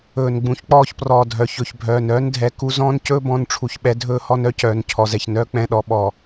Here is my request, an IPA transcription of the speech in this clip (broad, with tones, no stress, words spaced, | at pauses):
ɵː˨n ɡ͡bũ˨˦çk͡pɔː˦˨çprɔː˨dʱœ˨ çɵ˨çbʱœː˨nœː˦ndʱɛ˨ ku˦ zɔ̃ː˦ncɵː˦bɔ̃˨˦nʈ͡ʂʰu˨ç ɓɛ˦ dʱɵː˦hɔ˦nœ˦ cœː˨n cʰɔ˨zɛ˨çnœː˦ k͡pɛ̃˨ɗɔ˨ ɓɔ˨